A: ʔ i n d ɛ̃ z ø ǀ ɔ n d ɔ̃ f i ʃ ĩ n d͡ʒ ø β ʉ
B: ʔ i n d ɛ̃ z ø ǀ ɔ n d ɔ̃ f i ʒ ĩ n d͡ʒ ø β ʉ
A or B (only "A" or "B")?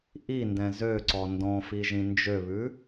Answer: B